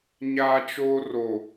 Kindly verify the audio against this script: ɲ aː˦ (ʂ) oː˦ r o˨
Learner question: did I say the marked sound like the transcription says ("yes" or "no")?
no